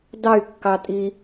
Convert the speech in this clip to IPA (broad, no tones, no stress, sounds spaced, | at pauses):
d ɑ y̯ kː ɑ tʼ i